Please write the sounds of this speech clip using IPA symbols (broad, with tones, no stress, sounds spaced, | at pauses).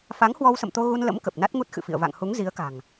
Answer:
f a˨˦ ŋ h w ɔ˧ w s ə̰˧˨ m t̪ o˧ ɣ u˧ n l ə̰˧˥ m k ə˨˩ p̚ n a˦˥ t̚ ŋ u˦˥ t̚ x ɨ̰˧˨ f ḭ˧˨ ə̯ v a̰˧˨ ŋ h u˨˦ ŋ z i˨˦ ə̯ k a̤˨˩ ŋ